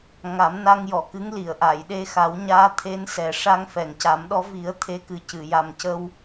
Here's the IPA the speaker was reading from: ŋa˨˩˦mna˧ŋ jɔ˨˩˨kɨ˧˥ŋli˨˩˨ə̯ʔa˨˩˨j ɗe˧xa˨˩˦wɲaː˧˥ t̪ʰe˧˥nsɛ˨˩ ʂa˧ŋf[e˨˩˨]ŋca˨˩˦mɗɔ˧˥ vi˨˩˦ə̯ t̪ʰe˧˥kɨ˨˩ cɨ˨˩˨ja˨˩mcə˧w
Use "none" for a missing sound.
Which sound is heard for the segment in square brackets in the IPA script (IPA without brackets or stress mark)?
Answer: ɛ˨˩˨